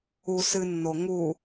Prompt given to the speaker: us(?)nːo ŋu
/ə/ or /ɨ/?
ɨ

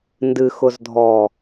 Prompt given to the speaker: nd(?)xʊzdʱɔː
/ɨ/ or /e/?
ɨ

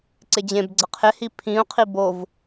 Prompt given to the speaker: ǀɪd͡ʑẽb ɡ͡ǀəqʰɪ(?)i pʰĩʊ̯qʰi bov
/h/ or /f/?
h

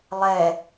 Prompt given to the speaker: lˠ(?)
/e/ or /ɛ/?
ɛ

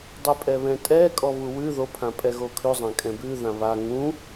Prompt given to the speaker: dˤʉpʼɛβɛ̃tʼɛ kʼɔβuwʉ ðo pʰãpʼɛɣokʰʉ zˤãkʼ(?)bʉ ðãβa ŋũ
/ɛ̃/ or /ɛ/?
ɛ̃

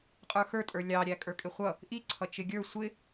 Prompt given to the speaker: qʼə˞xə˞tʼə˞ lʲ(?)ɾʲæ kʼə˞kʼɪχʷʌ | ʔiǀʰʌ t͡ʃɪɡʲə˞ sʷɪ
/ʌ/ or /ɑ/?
ɑ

